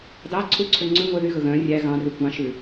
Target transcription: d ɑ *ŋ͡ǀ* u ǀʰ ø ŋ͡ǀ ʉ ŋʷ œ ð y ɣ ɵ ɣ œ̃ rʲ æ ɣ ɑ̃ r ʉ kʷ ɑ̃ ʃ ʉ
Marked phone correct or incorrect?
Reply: incorrect